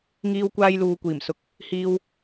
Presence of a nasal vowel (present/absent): absent